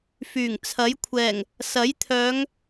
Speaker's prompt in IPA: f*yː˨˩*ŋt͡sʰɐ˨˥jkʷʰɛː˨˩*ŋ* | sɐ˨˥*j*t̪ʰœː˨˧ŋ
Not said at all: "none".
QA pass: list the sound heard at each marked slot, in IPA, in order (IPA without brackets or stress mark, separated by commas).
yː˨˩, ŋ, j